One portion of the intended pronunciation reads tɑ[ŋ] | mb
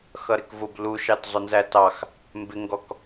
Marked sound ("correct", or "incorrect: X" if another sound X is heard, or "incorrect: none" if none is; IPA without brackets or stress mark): incorrect: x